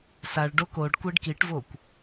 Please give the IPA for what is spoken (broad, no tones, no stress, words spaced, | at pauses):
saɭ ɖokoɖkʷeɖ kiʈvokʷ